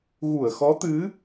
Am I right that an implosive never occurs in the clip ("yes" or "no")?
yes